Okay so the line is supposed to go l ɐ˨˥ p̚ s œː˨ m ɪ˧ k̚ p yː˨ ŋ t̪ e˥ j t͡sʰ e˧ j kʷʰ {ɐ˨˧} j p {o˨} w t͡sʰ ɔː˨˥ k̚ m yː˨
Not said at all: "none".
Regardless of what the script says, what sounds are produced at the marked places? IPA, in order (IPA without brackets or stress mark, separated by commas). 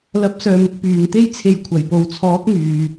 ɐ˨˩, o˨